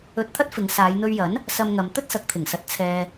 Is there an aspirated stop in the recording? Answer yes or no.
yes